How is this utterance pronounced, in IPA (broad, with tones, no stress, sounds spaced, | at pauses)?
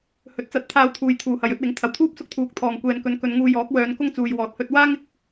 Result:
h ɵ˨˥ t̚ t͡s ɐ˨˥ t̚ t̪ʰ aː˧ w t̪ʰ uː˨ j t̪ʰ uː˨ h ɐ˨ j ɵ˥ t̚ w ɪ˨˥ ŋ t̪ʰ ɐ˨˩ w t̪ʰ uː˥ p̚ s ʊ˥ k̚ t̪ʰ uː˨˥ k̚ t̪ʰ ɔː˨ ŋ kʷ ɛː˨ n k ɵ˨˧ n k ɵ˨˧ n ŋ uː˧ j ɔː˨˥ k̚ w œː˨˧ n k ʊ˥ ŋ t͡s uː˨ j w ɔː˨ t̚ h ɵ˧ t̚ w aː˥ ŋ ɪ˨ k̚